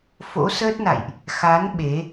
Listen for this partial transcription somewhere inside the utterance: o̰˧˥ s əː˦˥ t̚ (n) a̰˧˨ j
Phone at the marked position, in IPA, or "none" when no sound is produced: n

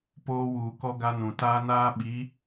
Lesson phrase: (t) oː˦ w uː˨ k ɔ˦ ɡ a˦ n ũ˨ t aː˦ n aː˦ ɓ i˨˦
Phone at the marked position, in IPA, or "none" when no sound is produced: p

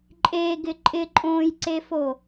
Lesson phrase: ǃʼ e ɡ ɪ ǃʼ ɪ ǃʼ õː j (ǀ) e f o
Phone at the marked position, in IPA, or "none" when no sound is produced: ǀ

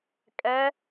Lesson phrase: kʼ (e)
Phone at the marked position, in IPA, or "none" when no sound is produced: ɛ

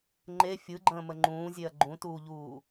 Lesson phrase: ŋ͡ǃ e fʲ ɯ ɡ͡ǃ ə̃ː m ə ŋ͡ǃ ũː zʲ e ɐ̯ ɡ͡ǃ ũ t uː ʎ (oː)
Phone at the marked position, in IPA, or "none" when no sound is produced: uː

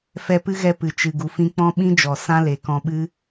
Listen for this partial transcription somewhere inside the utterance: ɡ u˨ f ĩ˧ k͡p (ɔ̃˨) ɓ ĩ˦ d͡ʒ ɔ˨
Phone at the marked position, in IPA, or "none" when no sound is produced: ɔ̃˦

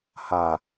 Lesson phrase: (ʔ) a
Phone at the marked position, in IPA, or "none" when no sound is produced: h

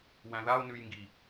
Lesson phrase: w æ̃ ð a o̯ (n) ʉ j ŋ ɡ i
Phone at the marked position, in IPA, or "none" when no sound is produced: n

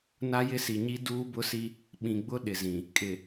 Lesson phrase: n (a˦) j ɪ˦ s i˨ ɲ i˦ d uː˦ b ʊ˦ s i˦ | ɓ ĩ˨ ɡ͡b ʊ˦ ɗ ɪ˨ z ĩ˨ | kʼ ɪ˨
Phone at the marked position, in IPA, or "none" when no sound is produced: a˦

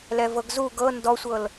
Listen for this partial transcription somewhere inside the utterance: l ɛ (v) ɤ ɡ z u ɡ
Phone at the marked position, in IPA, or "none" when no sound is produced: v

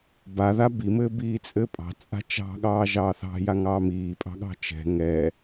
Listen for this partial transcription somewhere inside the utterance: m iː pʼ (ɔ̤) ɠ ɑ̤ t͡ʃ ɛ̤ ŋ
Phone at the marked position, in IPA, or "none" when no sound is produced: ɑ̤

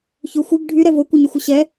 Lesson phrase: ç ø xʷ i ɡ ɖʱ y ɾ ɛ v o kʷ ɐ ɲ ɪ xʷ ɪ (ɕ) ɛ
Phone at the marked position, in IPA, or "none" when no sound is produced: ɕ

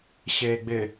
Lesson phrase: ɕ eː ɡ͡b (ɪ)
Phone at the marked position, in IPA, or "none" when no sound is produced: ɪ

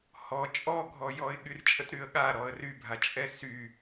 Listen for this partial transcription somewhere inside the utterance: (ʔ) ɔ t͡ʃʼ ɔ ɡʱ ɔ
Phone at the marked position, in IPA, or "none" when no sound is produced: h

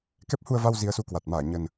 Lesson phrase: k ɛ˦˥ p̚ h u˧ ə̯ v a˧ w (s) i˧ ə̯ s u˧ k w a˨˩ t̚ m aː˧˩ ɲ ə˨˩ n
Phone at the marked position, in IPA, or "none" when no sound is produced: z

